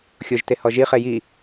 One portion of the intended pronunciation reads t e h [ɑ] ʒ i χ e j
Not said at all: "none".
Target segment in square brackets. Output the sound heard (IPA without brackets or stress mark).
ɔ